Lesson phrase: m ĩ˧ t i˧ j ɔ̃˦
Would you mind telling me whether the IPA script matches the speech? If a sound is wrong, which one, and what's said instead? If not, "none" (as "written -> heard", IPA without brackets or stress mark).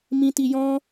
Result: none